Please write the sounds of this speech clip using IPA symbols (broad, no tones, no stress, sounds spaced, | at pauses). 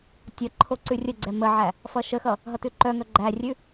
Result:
tʲ ʌ ǃʰ o ǀ ʉ rʲ ə ɡ͡ǀ ɛ m ə ʕ æ | f ʌ ʃ ə x ʌ | ɦ ʌ t ʉ ǃ œ ŋ œ ɡ͡ǃ æ rʲ ʉ